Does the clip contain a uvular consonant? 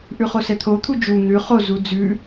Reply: yes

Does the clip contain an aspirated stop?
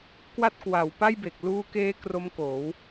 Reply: no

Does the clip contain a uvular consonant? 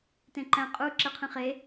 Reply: yes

